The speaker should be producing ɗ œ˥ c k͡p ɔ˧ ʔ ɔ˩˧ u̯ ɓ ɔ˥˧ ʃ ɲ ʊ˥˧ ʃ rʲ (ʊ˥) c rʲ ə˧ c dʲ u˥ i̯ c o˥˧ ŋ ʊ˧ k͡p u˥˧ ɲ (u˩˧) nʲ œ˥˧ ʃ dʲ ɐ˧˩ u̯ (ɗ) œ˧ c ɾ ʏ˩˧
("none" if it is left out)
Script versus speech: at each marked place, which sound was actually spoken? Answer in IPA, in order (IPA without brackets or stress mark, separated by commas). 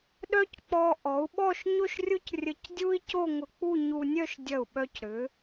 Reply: ʊ˥, u˧, ɓ